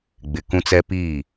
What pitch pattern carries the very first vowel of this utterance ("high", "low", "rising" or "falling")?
low